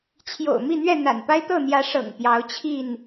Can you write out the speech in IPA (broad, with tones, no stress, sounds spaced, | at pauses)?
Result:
t͡ɕʰ j o̰˨˩ ʊ̯ m i˥˨ n̪ ɥ ɛ˥˨ n̪ a̰˨˩ n p a˦ ɪ̯ t̪ ɤ˥˨ n̪ j ä˨˦ ʂ ɤ̰˨˩ ŋ p j ɑ˨˦ ʊ̯ t͡ɕʰ i˥˨ n